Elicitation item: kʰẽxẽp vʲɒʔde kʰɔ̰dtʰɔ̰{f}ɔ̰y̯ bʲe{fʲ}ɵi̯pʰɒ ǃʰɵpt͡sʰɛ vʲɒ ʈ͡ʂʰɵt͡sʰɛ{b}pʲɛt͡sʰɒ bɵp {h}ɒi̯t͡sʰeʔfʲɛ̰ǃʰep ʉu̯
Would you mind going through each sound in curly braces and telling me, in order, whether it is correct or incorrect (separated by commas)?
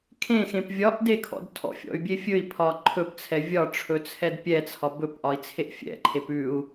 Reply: incorrect, correct, incorrect, incorrect